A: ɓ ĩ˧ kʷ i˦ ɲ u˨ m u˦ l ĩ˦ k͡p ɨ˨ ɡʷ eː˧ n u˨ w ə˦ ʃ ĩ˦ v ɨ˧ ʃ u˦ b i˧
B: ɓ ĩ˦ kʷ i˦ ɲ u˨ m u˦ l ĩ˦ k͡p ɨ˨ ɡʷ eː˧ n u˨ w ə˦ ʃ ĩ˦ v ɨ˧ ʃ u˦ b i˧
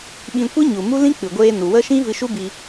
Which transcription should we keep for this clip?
A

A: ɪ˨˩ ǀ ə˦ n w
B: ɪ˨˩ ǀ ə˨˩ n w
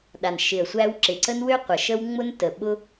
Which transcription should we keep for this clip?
A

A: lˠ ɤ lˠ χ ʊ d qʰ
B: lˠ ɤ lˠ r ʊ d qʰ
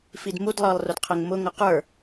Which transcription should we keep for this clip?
B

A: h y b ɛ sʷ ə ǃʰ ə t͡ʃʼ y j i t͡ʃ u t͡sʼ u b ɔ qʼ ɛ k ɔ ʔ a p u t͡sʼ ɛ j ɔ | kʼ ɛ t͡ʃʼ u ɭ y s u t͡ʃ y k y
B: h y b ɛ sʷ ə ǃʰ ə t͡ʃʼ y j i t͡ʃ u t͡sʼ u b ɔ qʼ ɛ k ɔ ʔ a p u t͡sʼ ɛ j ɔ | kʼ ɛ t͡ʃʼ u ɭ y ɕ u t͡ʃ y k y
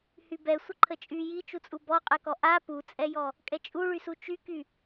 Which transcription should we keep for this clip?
A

